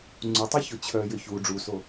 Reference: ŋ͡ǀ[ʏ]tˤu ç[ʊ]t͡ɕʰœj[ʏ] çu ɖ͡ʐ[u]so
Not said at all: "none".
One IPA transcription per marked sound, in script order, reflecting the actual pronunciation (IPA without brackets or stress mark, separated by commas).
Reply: u, ʊ, ʏ, u